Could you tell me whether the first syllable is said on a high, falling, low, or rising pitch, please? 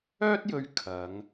high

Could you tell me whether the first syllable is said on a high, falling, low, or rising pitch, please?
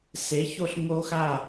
rising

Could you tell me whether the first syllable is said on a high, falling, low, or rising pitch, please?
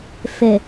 low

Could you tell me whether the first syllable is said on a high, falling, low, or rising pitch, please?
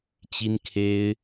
high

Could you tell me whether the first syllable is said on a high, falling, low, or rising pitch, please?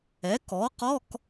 rising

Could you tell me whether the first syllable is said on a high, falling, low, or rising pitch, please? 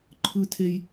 high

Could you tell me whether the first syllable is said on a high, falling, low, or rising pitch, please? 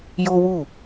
high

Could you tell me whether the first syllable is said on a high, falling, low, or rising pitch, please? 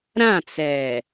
falling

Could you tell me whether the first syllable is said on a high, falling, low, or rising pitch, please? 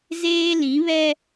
high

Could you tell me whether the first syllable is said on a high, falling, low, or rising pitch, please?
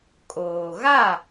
low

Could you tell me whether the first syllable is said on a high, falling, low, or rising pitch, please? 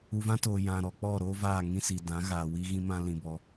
low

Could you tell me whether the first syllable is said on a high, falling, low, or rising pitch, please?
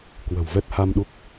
low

